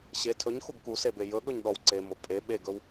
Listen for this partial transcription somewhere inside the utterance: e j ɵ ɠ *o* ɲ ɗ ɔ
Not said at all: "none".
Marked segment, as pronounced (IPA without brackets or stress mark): ɵ